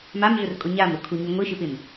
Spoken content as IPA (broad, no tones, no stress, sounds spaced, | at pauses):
m a m ɮ ʊ r kʼ ʊ ɲ a m ɾ ʊ kʰ u ɲ u ŋʷ i ʃ ɪ p ɪ m